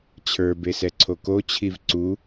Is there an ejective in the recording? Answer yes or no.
no